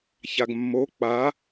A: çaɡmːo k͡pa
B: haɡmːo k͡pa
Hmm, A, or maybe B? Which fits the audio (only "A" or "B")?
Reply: A